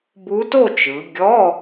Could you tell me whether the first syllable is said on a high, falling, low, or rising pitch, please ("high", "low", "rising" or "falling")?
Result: rising